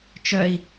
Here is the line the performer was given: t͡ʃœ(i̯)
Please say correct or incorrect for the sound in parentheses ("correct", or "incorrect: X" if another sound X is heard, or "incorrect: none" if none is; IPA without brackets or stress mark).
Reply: correct